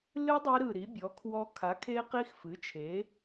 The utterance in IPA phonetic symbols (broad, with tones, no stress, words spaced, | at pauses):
lɨ˦˥ dˤi˦˥ɾɯ˧˩ ɾi˩˥bʲɔ˩˥kʰwɔ˦˥ kʰa˩˥kʰe˦˥qi˦˥x fɨ˩˥t͡ʃʰe˩˥